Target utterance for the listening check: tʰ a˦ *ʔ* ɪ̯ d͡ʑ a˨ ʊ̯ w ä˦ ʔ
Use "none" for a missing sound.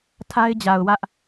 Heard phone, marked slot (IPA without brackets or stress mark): none